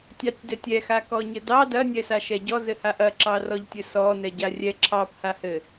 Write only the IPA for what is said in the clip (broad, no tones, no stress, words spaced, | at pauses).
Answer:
tʲɑtʲdɛtʲɛ xakɔɲɘdɑ dɐ nʲɛsaʃɛɟɔ zɘhaʔɐ ǁɑrɔʎtʲɘsɔ nɛɟarʲɛ ǁʰɑp hahɘ